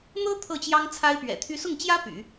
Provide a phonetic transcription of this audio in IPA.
n̪ɤ˥ t̪ʰɤ˥˩t͡ɕjɑ˥ŋ t͡sʰa˥ɪ̯pɥɛ̰˨˩t̪ʰy˥ sʊ˥˩ŋt͡ɕjä˥ py̰˨˩˦

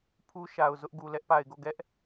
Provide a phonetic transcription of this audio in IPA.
pʰu˦ʃa˨ʊ̯zʊ˦ʔ ɡu˨lɛ˦ʔpa˨ɪ̯ɡo˦˨ ɡɛ˦ʔ

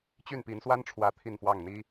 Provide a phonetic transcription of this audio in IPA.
t͡ɕy˥˩npi˧˥nswa˥nʈ͡ʂʰwä˧˥ t̪ʰi˥˧nfwɑ˥˩ŋn̪i˥

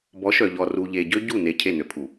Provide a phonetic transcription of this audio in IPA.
bɔ˨˦ʃœ˨ ʎɔ˨ru˨ʎe˨ɟø˦ ɟu˦˨ ne˨ cʰe˦˨nø˨pʰu˨

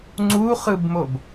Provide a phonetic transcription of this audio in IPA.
ŋ͡ǀuχɯbmob

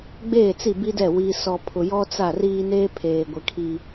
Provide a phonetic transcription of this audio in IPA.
ɡ͡beː˦˨t͡si˦˨bi˦dɛ˦˨ wi˨sɔ˨ pʰʊ˨jɔ˦t͡sa˦˨ riː˦ neː˦pʰeː˨ɡʷɪ˨ kʰi˨

